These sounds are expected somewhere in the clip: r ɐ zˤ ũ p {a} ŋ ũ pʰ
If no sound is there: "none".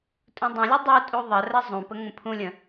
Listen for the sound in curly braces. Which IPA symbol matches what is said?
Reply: ə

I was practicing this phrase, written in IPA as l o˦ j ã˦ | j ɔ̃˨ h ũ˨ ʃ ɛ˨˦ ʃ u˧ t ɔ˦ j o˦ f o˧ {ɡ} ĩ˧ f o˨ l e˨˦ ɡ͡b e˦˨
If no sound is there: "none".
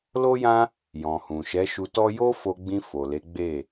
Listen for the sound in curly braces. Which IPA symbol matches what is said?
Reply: ɡ͡b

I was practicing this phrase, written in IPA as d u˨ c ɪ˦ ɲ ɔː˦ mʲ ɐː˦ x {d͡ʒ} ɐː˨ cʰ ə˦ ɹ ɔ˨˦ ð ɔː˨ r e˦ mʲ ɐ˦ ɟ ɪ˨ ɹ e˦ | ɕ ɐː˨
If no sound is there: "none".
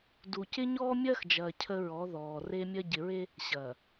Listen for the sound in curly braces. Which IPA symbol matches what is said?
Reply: d͡ʒ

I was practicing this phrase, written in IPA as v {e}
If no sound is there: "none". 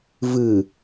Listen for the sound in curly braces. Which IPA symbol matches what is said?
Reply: ɨ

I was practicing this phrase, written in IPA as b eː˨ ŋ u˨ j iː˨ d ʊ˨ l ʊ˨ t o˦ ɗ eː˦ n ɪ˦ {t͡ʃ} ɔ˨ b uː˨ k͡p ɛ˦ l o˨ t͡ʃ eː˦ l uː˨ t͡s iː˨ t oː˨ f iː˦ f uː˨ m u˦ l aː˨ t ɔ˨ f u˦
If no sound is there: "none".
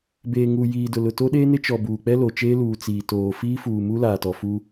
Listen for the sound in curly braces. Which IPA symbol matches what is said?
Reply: t͡ʃ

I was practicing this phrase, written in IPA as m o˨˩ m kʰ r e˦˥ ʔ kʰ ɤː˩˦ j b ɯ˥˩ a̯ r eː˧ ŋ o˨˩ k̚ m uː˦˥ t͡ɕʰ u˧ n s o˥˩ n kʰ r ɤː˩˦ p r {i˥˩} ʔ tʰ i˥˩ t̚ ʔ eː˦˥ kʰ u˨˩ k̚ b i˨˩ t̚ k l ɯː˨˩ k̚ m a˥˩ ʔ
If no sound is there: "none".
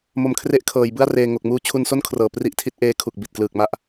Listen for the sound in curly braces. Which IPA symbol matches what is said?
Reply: i˥˩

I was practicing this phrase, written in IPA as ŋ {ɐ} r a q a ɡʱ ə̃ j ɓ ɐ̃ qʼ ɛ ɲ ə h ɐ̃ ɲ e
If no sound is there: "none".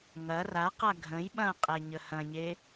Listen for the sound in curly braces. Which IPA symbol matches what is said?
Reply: ɐ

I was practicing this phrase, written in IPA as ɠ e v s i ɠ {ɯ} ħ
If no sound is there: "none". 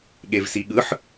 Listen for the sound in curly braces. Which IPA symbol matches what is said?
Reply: ɯ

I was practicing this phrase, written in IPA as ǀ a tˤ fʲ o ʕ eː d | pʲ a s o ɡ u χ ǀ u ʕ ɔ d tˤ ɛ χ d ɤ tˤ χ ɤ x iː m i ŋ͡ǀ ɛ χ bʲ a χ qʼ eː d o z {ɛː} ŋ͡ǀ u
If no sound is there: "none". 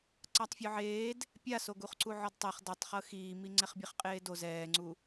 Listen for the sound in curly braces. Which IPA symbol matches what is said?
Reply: ɛː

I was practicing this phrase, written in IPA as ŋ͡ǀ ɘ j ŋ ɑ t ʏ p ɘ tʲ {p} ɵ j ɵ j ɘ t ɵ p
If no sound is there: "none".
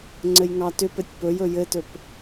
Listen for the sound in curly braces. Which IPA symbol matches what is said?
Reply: p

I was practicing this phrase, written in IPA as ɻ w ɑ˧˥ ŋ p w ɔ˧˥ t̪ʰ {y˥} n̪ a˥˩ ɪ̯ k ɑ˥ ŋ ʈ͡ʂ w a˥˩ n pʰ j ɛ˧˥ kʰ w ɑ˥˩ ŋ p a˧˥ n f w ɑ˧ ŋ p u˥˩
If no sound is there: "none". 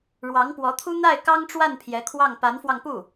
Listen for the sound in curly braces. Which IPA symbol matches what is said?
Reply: u˥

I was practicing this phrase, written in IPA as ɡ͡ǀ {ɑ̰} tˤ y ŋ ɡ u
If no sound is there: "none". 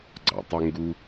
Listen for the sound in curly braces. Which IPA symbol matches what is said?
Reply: ɑ̰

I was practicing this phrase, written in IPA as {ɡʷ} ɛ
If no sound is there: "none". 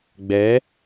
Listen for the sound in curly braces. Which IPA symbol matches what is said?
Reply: ɡ͡b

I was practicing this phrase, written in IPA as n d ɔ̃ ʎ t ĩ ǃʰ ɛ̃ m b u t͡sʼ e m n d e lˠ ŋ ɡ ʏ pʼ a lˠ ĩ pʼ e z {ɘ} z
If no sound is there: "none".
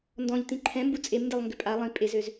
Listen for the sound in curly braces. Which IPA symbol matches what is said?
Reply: ø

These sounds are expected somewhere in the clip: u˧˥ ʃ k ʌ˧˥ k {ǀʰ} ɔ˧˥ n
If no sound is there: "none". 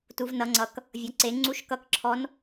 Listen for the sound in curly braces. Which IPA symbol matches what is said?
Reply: ǁʰ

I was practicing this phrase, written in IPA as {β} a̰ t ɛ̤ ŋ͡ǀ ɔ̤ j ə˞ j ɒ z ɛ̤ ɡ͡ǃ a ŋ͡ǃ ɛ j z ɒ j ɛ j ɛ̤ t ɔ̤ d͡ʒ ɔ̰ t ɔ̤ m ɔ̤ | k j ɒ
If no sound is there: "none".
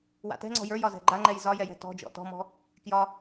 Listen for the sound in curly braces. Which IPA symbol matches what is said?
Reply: w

